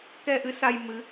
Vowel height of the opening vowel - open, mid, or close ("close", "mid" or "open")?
mid